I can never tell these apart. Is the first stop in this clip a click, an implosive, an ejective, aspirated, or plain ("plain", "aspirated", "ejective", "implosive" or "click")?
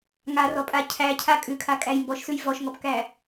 ejective